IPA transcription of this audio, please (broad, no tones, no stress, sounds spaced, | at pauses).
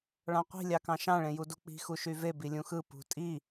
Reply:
ɭ ɑ̃ qʷ i̤ lʲ ɑ k ɑ̃ ʃ ɑ̃ ɭ ẽ j u d u k͡p i̤ x u ʃ y v e b i lʲ ũ x ɯ p ṳ tʼ i